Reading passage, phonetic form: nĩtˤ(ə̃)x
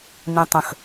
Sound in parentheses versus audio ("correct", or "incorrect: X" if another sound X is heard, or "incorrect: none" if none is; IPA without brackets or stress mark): correct